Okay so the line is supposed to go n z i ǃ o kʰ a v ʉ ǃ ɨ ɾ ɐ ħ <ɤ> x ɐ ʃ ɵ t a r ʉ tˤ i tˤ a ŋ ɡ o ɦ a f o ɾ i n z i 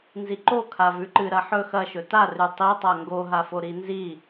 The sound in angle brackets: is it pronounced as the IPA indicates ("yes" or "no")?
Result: no